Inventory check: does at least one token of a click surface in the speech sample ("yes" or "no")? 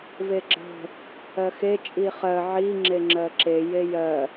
yes